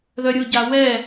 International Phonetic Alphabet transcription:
ð œ ɾʲ ʊ ɟ a w ɛ

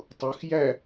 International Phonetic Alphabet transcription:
tˤ u x j æ

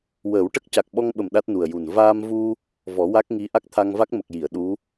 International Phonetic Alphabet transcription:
w əː˨˩˦ w ʈ ə˦˥ k̚ c a˨˩ k̚ ɓ ɔ˧ ŋ ɓ ə˨˩ m ɗ a˦˥ t̚ n u˨˩ ə̯ j u˨˩ n v aː˧ m v u˧ | v ɔ˨˩˦ w a˦˥ k̚ ŋ i˧˥ ʔ a˦˥ k̚ t̪ʰ a˧ ŋ v a˦˥ k̚ m ə˨˩ k̚ j i˨˩˨ ə̯ ɗ u˧˥

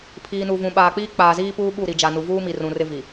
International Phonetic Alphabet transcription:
pʰ iː˨ n u˨ v ũ˨ ɓ aː˨ k͡p iː˦ k͡p aː˨ z iː˦ p uː˦ ɓ u˦˨ ɾ i˨ d͡ʒ a˨ n u˨ v uː˦ m i˨ r ũ˨ r ɪ˦ v i˨

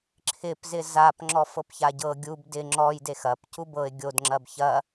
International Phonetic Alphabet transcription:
ǁʰ ɪ p z ɪ z a p ŋ͡ǁ ɔ f ɤ p ç a ɟ ɤ ɡʲ u b d ɪ ŋ͡ǁ ɔ j d e x ɐ p c u b ɤ ɪ̯ ɡʲ o d ŋ͡ǁ ɐ b ç ɐ

